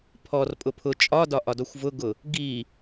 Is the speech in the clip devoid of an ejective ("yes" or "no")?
no